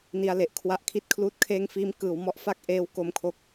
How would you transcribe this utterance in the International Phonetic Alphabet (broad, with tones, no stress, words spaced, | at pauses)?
ni˧a̯le˨˩ʔkʰwa˦˥ʔ kʰi˥˩t̚kʰluː˥˩t̚kʰeː˥˩ŋ fiː˧mkɯː˩˦w mɔ˦˥ʔfa˥˩k̚ ʔeː˦˥w ko˧mkʰo˦˥k̚